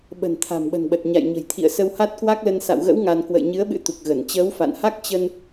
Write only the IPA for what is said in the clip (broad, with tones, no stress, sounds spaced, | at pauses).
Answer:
ɓ ə̤˨˩ n t̪ʰ a̤˨˩ m ɓ ə̤˨˩ n ɓ ə˨˩ t̚ ɲ a̰˧˨ j ɲ ə̤˨˩ j t̪ʰ ḭ˧˨ ə̯ s ə˧ w h a˦˥ t̚ k w a˦˥ k̚ l ə˧ n s a̰˧˨ w ɣ ə̰˧˥ w ŋ a˧ n k w ə̰˧˨ j ɲ ɨ˨˦ ə̯ ɓ ɨ̰˧˥ t̪ u˨˩ k̚ ɣ ə˧˩ n t͡ɕ əː˨˦ w f a̰˧˨ n h a˦˥ k̚ t͡ɕ ə˧ n